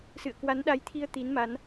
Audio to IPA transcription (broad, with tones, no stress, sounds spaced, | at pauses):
s ɨ̰˧˨ ə̯ k w a˨˦ n ɗ a˨˦ j t̪ʰ i˧ ə̯ t̪ i˨˦ n m a˨˦ n